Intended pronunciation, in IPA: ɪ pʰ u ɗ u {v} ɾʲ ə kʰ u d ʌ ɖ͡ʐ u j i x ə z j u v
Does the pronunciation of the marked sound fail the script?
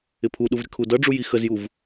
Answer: no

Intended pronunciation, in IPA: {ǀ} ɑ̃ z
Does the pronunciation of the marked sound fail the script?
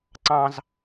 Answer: no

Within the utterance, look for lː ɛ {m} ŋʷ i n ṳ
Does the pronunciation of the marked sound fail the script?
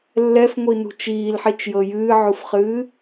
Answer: yes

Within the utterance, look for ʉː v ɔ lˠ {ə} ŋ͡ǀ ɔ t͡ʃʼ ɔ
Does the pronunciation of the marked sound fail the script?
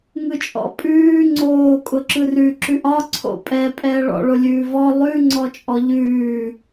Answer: yes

